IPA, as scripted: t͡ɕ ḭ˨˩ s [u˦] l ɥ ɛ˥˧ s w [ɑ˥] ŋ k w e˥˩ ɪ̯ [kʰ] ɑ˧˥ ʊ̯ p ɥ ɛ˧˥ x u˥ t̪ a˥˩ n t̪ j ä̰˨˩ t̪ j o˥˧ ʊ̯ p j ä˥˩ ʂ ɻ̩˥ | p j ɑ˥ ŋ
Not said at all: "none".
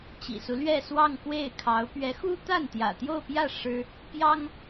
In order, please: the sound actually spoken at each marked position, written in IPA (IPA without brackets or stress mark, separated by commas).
u˦, ɑ˥˧, kʰ